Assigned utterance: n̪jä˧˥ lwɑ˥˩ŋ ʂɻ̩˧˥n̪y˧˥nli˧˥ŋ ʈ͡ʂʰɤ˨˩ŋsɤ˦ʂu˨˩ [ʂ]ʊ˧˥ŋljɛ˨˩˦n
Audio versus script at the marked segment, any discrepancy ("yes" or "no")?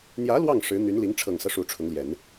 yes